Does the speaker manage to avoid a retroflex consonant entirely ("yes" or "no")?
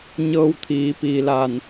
yes